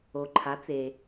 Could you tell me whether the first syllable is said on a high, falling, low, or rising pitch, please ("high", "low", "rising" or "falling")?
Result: low